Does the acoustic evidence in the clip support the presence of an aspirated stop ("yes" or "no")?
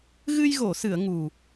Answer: no